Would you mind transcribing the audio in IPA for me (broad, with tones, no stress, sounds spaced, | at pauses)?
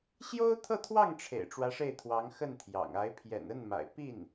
ɕ j o˥ ʊ̯ t̪ʰ ɤ˥˧ t̪ʰ w ɑ˥˩ ŋ ʈ͡ʂʰ ḛ˨˩ ɪ̯ ʈ͡ʂ w ä˧˥ ʂ e˥˩ ɪ̯ t̪ʰ w ɑ˧˥ ŋ x ə˥˩ n t̪ʰ j ɑ̰˨˩ ŋ a˧˥ ɪ̯ pʰ j ɛ̰˨˩ n ə˥˩ n m a̰˨˩ ɪ̯ p i˥˩ n